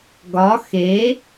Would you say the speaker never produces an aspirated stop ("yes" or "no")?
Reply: yes